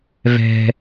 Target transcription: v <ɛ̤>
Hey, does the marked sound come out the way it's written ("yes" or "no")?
yes